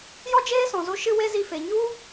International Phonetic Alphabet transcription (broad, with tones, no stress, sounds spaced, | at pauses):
j ɔ˦ d͡ʒ eː˦ s ɔ̃˨ z o˧ ʃ ɨ˦ w e˦ z i˧ f e˨ ɲ u˦